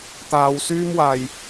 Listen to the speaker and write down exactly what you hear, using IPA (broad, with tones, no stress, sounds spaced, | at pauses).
t̪ aː˥ w s yː˥ m w aː˧ j